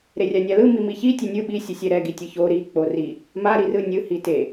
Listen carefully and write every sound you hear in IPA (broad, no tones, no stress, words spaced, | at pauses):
ɾerʲanʲalɯ mimiçi tʲenʲɯ ɓi sʲɯsʲɛɾɛ ɡitʲɯço ɾi k͡pori | ma ɾirɯnʲɯ hite